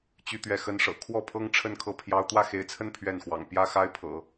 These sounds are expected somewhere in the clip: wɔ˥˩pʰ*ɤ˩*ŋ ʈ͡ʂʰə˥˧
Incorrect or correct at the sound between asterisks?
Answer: incorrect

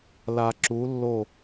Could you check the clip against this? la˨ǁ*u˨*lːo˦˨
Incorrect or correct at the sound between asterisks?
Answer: incorrect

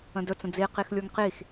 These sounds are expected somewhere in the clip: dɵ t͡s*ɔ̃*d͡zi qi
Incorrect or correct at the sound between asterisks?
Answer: incorrect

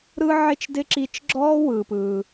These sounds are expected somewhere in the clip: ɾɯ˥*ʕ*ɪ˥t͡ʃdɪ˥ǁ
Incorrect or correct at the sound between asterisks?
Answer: correct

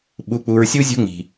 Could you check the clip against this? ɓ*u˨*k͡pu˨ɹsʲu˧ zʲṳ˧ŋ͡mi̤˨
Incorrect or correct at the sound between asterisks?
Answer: correct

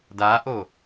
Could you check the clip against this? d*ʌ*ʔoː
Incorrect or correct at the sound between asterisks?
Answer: incorrect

